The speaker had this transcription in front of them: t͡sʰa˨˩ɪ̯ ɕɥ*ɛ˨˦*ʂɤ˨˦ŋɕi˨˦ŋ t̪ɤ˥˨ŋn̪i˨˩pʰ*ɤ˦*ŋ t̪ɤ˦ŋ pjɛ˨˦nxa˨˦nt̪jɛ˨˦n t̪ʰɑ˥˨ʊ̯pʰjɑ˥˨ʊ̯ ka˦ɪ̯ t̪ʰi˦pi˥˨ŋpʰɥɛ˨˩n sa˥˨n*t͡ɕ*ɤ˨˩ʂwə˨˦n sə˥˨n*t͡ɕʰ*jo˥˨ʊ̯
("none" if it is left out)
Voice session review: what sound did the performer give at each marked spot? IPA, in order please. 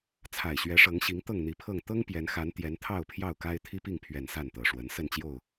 ɛ˨˦, ɤ˥˨, t̪, t͡ɕ

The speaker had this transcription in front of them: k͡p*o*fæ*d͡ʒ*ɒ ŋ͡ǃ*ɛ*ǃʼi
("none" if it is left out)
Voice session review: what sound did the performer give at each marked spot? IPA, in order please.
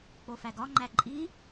o, ɡ, æ

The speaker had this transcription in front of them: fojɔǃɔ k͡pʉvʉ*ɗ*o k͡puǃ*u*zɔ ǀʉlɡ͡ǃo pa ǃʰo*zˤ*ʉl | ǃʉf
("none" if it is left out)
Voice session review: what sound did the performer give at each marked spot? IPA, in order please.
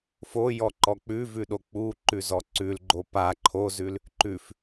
ɗ, ʉ, z

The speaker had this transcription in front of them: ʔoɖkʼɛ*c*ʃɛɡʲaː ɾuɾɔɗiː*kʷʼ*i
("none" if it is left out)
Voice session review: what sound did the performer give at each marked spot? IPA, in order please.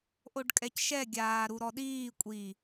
c, kʷʼ

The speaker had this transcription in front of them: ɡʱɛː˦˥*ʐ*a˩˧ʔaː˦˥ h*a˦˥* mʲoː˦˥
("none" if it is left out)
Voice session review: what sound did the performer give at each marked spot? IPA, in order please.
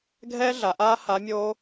ɮ, a˨˥

